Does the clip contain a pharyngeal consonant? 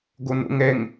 no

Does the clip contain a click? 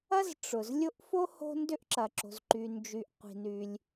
yes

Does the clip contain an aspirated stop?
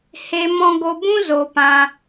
no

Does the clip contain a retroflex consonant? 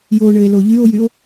yes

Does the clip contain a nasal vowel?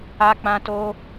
yes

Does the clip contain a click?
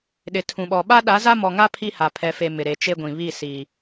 no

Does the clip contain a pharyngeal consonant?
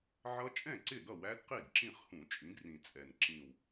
yes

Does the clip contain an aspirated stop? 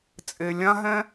no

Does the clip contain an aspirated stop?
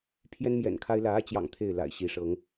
yes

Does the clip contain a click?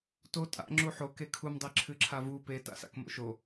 yes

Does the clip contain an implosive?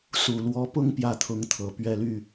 no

